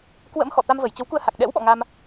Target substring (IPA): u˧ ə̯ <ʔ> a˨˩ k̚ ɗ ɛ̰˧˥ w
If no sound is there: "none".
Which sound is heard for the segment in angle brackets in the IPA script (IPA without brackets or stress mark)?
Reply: h